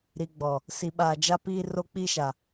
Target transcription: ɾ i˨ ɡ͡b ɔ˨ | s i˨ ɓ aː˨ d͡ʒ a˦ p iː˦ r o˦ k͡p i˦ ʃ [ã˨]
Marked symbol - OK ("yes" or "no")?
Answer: no